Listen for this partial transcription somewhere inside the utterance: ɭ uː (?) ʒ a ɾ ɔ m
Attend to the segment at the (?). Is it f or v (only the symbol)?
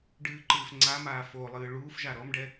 f